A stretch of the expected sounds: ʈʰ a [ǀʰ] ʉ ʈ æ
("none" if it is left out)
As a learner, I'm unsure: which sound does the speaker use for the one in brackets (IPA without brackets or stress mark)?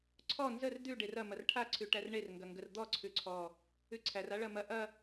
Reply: ǀʰ